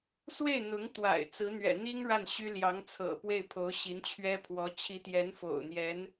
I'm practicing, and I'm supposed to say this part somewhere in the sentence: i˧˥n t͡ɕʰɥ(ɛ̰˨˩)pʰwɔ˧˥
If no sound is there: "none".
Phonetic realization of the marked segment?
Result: ɛ˥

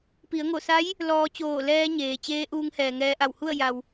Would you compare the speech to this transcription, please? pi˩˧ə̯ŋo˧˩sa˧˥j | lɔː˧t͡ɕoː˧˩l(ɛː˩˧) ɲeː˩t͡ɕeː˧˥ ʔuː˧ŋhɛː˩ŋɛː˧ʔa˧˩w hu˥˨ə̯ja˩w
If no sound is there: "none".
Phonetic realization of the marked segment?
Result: ɛː˧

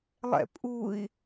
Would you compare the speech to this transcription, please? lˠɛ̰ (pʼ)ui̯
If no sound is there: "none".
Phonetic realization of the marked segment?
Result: pʼ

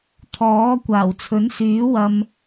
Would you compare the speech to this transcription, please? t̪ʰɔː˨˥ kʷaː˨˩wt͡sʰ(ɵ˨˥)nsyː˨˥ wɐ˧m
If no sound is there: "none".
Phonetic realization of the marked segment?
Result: ɵ˨˥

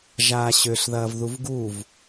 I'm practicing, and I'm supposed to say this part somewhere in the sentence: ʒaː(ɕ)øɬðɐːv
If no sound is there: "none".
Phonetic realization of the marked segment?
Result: ɕ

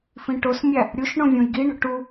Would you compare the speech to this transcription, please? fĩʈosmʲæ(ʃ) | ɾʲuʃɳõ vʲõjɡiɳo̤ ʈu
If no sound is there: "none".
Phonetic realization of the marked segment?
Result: none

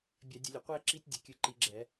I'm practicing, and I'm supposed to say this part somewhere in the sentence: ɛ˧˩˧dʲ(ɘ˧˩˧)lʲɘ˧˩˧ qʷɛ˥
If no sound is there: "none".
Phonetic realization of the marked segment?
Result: ɘ˧˩˧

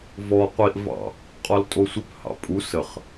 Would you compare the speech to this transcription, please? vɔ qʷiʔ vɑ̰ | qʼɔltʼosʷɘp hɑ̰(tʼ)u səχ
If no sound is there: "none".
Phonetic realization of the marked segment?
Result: pʼ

